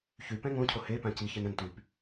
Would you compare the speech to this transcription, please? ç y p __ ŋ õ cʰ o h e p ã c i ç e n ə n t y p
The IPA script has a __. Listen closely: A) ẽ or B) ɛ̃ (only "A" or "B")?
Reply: B